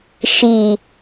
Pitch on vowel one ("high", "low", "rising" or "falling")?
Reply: low